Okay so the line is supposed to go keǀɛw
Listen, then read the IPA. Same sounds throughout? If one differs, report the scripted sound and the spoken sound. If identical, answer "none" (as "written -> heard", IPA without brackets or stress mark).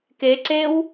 ɛ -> e